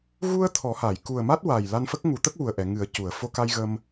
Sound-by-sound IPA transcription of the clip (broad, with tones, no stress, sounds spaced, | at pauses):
ɣ u˧ ə̯ t̪ʰ ɔ˨˩˦ h a˨˩˨ j k u˨˩ ə̯ m a˦˥ t̚ w a˨˩ j l a˧ n f ə˦˥ k̚ ŋ u˨˩˦ t̪ ə˦˥ k̚ w u˨˩ ə̯ ʔ ɛ˨˩˨ ŋ ɨ˨˩˦ ə̯ c u˨˩˨ ə̯ f o˧ k a˧ j ɣ ə˧ m